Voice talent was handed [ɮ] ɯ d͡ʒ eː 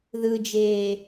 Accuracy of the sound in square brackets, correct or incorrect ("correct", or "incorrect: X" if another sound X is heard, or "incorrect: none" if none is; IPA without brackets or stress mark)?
incorrect: ð